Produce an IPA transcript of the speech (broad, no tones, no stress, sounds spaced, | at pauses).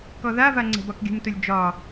k ɔ ð a v a ŋ͡ǀ ɛ̤ b ɒ k ɡʲ ṳ m t ʊ lʲ d͡ʒ ɒ